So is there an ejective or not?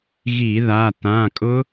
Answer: yes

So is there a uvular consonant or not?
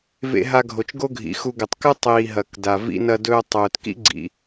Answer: no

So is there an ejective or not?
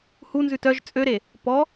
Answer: yes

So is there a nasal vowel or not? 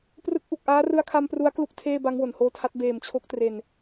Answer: no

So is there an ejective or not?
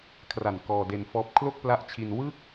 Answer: no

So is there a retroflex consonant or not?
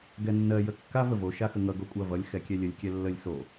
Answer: no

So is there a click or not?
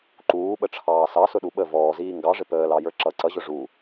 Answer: yes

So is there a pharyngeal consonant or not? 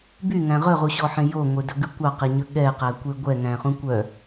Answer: yes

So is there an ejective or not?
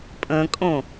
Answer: yes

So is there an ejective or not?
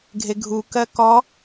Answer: no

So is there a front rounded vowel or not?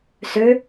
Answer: yes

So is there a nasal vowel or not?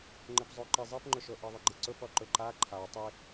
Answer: no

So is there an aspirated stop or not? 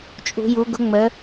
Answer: no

